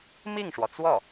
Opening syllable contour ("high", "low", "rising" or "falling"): falling